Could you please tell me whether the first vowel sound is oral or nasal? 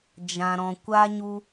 nasal